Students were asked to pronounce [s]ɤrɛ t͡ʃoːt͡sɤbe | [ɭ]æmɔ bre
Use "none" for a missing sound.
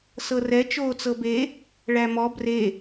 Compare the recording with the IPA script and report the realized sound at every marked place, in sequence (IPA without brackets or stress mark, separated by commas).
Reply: s, ɭ